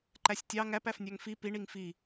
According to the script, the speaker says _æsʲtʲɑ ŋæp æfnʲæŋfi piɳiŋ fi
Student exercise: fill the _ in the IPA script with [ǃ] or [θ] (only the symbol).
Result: ǃ